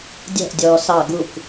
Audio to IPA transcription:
dʲ æ̤ ʔ dʲ ɔː s ɑ ɡ u k

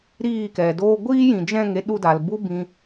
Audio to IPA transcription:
ɾ iː˦˨ k ɛ˨ d oː˧ ɡʷ iː˦ j ĩ˨ d͡ʒ ɛ̃˦˨ ŋ e˦ ɗ u˧ d a˨ l b u˦ b ĩ˧

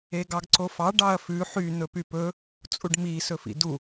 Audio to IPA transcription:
e ɡ ɑ ɡ ǀ o f ɑ ɖ ɑ ɐ̯ f ʉ ħ y n̪ ɵ p y p ɵ | t͡sʼ u ɖ m i s ɵ f ḭ d u

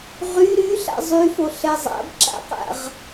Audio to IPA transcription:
ʁ y ɾ y ɬ a̰ zˤ y f o ɬ ɛ zˤ a̰ b ǁ a̰ q a̰ ʁ

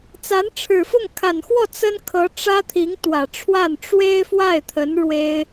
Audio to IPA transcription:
t͡s a˧˥ n ʈ͡ʂʰ ɻ̩˨˩ f ʊ˥˩ ŋ kʰ a˨˩ n x w ɔ˥˩ t͡s ə˥ n kʰ ɤ˧˥ ʈ͡ʂ ä˥ t̪ʰ i˧˥ ŋ t̪ w ä˨˩ ʈ͡ʂʰ w a˥˩ n ʈ͡ʂ w e˥ ɪ̯ f w a˥˩ ɪ̯ t̪ʰ ə˧˥ n ɻ w e˥ ɪ̯

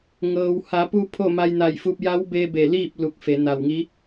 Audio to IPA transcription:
ŋ ɤː˩ w h a˩˧ p u˧ pʰ o˥˨ m a˧ j n a˧˩ j f u˧ p̚ j a˧˥ w b e˧ b e˧˩ l iː˥˨ p̚ l u˧˩ k̚ f e˩˧ n a˧˩ w ŋ i˧˥

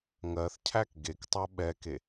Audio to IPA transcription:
ŋ ɜ θ cʰ æ k ɡ e k tˤ ɜ ɓ ɛ k e

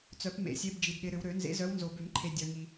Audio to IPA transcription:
t͡s œ˨˩˦ p m ḛ˨˩˦ sʲ e˨˦ b d͡ʒ i˨ d ɗ ɪ˨˦ ɾ ʏ˨˦ w ɾ ø˨˩˦ n z ḛ˨˦ z œ˨˦ w n z o˨ b ʏ˨˩˦ m ǃʰ e˨ dʲ œ˨ ŋ i˨

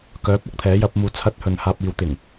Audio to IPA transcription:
k œː˨˥ p̚ ɐ˧ k̚ t̪ʰ ɛː˨˥ j ɐ˨˥ p̚ m uː˨˥ t͡sʰ ɐ˧ t̚ h ɵ˨ n h aː˧ p̚ iː˨˧ w t̪ ɪ˨˩ ŋ

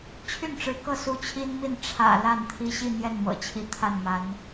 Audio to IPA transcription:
t͡ɕʰ y˥˩ n ʈ͡ʂ ɻ̩˧˥ k ɤ˥˩ s u˥ t͡ɕʰ i˥ n m i˥˩ n ʈ͡ʂʰ ä̰˨˩ l a˥˩ n t̪ʰ i˥ ɕ i˥˧ n̪ j ɛ˥˩ n m ɤ̰˨˩ t͡ɕʰ i˧˥ t̪ʰ a˥˩ n m a˧˥ n

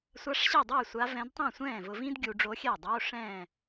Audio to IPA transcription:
sʷ a˧˥ ʂ ɕ i˥˩ dˤ ɪː˥˩ sʷ a˧˥ v ɛ̃˧˥ d tˤ ẽ˥˩ sʷ ɛ̃ː˥˩ v ʊ˧ v ĩ˥ d ɡʲ u˧ ɖ͡ʐ o˧˥ xʲ ɛ˥˩ dˤ o˧˥˧ ʂ ɛ̃ː˥˩

